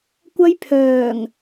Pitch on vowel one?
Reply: high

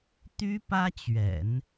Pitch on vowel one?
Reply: high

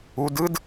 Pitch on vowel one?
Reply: rising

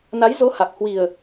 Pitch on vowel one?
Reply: rising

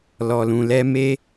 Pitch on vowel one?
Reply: low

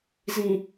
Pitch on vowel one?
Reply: low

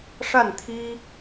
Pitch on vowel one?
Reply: falling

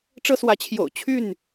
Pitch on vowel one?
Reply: high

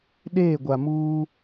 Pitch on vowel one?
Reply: falling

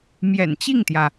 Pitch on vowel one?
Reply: low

